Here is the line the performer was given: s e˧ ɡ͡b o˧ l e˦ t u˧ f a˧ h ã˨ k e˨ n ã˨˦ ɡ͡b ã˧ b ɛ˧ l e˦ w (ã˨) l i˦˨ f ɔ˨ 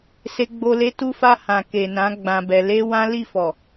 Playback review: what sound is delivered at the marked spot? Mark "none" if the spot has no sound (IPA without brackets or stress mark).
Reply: ã˦